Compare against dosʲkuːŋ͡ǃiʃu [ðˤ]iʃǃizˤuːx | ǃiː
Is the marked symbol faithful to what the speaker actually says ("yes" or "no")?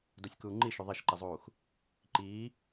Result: yes